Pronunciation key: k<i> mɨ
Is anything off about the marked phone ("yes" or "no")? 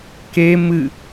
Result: yes